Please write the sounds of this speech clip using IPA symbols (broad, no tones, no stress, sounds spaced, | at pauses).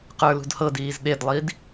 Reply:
q ə˞ l ṳ d h ɤ d iː z ɗ e d lˠ i d